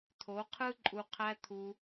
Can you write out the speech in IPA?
t̪ʰ o˨˦ qʰ ɯ˦ ǃʼ u˧ qʰ æ˧ t̪ʰ u˧

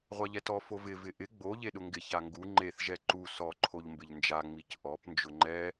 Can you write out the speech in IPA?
ʁʷ a ʎ ɛ t ɔ f o v ɪ v ɪ ʔ ɪ ɡ͡b o ʎ e ɗ ʊ ŋ ɡ ɪ ç a ŋ ɡ u ŋ͡ǃ e θ ʒ ɛ ǃ u s ɔ ǃʰ o ʎ m b ɪ ʎ n d͡ʒ a ŋ͡m i c ʔ ɔ p n d͡ʒ ʊ ŋ͡ǃ ɛ

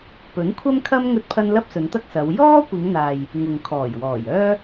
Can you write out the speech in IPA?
p ɵ˨˥ n kʷʰ ɐ˥ m kʰ ɐ˥ m ŋ ɵ˥ t̚ pʰ ɐ˥ n l ɐ˥ p̚ s ɵ˨˧ n t̪ ɐ˥ k̚ s ɐ˨˧ w j ɔː˥ kʷ ɪ˨˧ ŋ n̪ aː˨ j | ŋ ʊ˨ ŋ kʰ ɔː˨˩ j w ɔː˨˩ j œː˥

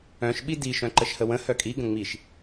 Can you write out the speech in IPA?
œ̃ ʃ ɓ i d i ʃ œ̃ ǃ ə ʃ h ə w ə̃ h œ kʼ i ɡ ə̃ ŋ͡m i ʃ

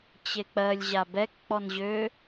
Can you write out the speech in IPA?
t͡ɕ e k͡p ɜ lʲ ʑ a b ɛ k k͡p ɔ n ʑ ø

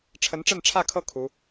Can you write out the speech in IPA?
ʈ͡ʂʰ ə˧˥ n ʈ͡ʂ ə˥˧ n ʈ͡ʂʰ ä˥˧ kʰ ɤ˥˩ kʰ u˧˥

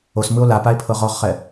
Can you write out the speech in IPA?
o s m ɯ o̯ l a p a e̯ pʰ ɤ ʁ ɔ ʁ χ ɛ

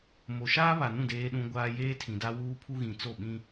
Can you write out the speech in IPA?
m o˨ ʃ aː˦ β a˨ n ũ˦˨ d eː˦ ɗ ũ˦ ɡʷ aː˦ j eː˦ tʰ ĩ˨ d a˦ w uː˦ pʰ u˦ ɣ ĩ˨ t͡s o˦˨ ɓ ĩ˦

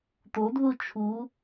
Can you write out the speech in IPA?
t̪ o d ð u t͡ʃʰ u

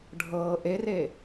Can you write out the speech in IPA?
ɖʱ ɤː ʔ e r e

